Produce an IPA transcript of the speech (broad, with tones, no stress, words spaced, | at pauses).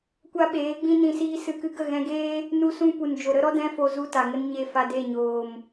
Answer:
kʷa˦ɓeː˨˦ɡ͡bĩ˦ nĩ˧siː˦sɨ˧kɨ˦ ɡə˦˨ɣɛ̃˧ɡeː˦ | nu˦sũ˦ pu˨n d͡ʒo˨ɾə˦ɾɔ˦ dɛ̃˦fo˧ zu˧ ta˨ŋə˦n ɲe˦˨ fa˧de˦˨ɲoː˨m